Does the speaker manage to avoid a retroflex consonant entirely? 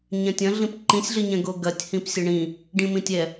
no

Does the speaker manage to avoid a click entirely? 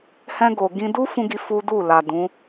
yes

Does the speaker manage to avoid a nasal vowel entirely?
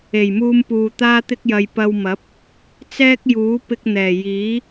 yes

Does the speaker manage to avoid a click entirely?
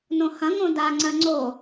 no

